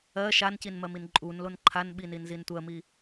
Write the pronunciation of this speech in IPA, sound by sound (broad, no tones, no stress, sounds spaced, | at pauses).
ɜ ʃ a n c i n m ɜ m i n ǃʼ u n l o n ǃʰ a n ɓ i n i n z i n tʷ ɜ m i